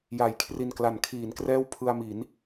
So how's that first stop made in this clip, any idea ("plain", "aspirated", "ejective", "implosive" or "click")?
aspirated